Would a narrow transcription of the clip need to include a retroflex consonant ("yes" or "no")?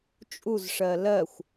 yes